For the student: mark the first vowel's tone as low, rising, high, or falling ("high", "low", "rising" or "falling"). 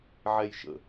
high